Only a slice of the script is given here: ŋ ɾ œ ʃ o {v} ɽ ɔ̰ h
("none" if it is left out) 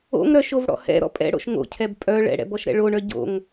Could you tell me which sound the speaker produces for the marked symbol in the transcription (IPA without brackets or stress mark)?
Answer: v